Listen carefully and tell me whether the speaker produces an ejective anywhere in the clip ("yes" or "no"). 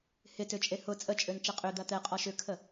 yes